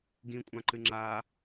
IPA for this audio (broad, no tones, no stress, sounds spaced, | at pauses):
ɡ ĩ kʷʼ ã ǃ ɨ ŋ͡ǁ a